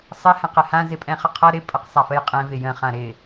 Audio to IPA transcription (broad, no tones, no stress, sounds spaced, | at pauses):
sˤ ə h ɛ̃ q ɪ h ã z ɪ pʼ ɛ̃ χ ə qʰ ʌ ɾ ɪ pʼ ə q sˤ a f ə j qʼ ɛ̃ v ɪ j ə̃ χ ã ɾ ɪ